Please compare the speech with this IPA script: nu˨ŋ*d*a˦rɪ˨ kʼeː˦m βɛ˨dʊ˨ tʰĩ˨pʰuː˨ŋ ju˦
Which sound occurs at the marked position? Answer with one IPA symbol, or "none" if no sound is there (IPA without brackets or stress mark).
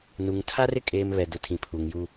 tʰ